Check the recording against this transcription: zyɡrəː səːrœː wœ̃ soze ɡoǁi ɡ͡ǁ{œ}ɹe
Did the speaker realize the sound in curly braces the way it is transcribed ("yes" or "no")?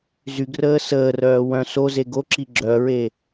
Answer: yes